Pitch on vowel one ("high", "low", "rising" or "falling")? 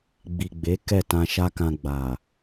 low